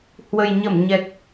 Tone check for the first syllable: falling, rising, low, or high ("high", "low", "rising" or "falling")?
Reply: low